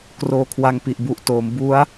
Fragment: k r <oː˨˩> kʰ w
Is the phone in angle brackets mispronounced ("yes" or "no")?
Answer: yes